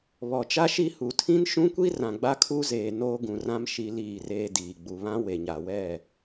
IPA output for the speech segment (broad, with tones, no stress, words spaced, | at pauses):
βɔ˨t͡ʃa˦ ʃi˦hu˨ tʰĩ˦nʃũ˦kʷi˦ rã˨ɡ͡ba˦kʰu˦zeː˨ noː˦ɡũ˨rã˦m ʃi˦liː˦˨reː˦diː˨ ɡ͡bu˨βã˦ we˨ɲa˨wɛ˦˨